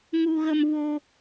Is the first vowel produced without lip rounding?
no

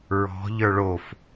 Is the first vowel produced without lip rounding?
no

